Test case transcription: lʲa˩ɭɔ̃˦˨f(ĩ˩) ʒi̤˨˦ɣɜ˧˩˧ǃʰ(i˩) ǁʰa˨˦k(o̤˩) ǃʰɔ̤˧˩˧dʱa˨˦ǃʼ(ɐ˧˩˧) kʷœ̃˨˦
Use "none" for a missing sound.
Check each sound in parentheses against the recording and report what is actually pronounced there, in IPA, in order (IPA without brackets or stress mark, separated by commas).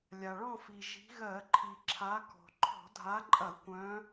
i˩, i˩, ɔ̤˩, ɐ˧˩˧